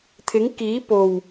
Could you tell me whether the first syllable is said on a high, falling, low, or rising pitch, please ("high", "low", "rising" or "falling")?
rising